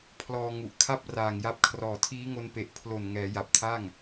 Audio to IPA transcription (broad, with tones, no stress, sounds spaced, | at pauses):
pʰ l ɔː˧ ŋ u˨˩ ʔ kʰ a˥˩ p̚ r aː˨˩ ŋ j a˦˥ p̚ kʰ r ɔː˨˩ tʰ iː˦˥ ŋ o˧ n p e˨˩ ʔ pʰ l o˨˩ n ŋ ɛː˩˦ j a˨˩ p̚ tʰ a˥˩ ŋ